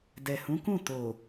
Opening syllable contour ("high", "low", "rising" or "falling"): low